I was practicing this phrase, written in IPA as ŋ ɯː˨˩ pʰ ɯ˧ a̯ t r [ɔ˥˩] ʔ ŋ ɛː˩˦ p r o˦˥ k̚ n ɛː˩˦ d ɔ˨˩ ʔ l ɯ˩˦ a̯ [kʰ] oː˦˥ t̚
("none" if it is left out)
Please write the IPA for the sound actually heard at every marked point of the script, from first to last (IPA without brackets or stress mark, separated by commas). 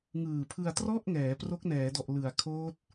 ɔ˥˩, kʰ